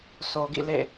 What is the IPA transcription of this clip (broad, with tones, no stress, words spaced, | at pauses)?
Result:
so˨ɡḭ˦˨lḛ˦˨